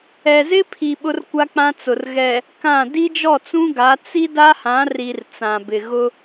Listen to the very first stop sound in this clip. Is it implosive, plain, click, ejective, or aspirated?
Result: aspirated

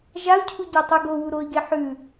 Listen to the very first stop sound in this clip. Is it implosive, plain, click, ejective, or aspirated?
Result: aspirated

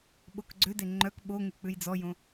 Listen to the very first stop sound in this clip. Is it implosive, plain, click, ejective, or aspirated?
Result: implosive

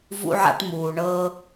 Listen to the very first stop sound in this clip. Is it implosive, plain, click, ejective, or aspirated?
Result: plain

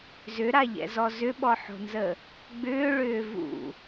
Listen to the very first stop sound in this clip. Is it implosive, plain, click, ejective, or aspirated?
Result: implosive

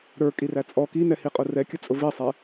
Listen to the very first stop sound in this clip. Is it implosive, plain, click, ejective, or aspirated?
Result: ejective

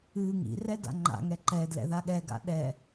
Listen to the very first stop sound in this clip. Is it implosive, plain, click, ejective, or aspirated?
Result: plain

